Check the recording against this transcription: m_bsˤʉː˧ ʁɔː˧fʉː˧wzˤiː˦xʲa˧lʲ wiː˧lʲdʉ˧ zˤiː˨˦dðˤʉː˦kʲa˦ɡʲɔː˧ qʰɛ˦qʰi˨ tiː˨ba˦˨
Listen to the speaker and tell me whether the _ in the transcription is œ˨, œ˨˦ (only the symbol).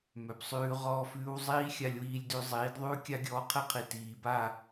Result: œ˨